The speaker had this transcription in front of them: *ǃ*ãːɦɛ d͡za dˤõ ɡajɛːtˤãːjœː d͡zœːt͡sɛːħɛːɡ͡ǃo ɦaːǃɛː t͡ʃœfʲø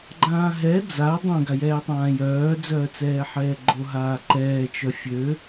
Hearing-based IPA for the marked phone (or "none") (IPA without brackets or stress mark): ɡ͡ǃ